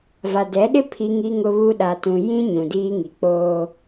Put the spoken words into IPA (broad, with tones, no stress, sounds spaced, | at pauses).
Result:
v a˨ d ɛ˨˦ ɗ ɪ˦ pʰ i˦ ŋ i˦ ŋ ʊ˦ β u˦ ɗ a˨ t ũ˨ j ĩ˦ ɲ ũ˨ d iː˦ ŋ i˨ k͡p oː˦